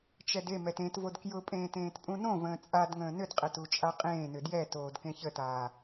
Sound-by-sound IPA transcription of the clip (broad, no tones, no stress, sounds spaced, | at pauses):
t͡ʃ ɛ d e m ɛ t ẽ t v o d k j ʊ pʼ ẽː t ẽː t pʼ ũ n õ v ə̃ː t͡sʼ a d ŋ ə̃ː n ʏ d qʼ ɛ t u t͡ʃʼ a qʼ ẽː n ʏ d j ɛ t oː d k ẽ ç ə t aː